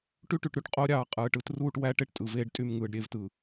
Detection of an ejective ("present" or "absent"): present